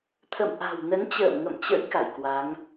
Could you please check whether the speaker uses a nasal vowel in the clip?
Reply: no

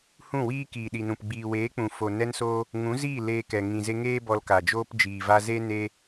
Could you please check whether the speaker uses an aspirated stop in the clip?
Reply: no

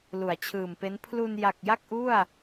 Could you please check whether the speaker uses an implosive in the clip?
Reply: no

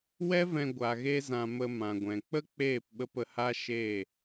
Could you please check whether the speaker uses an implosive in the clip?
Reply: yes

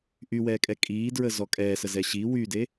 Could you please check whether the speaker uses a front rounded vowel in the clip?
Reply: yes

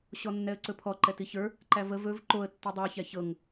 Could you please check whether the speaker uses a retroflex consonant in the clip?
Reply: no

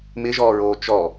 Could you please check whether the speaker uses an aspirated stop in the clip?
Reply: no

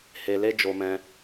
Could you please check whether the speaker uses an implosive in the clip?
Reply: no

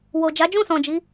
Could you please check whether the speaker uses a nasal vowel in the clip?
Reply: yes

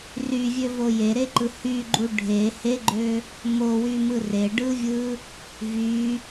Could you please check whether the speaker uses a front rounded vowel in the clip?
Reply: yes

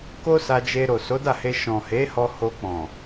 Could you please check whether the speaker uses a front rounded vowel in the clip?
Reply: no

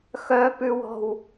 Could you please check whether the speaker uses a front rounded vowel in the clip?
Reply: yes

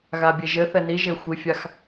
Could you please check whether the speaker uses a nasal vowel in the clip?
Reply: no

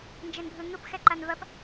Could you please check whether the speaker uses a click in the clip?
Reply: yes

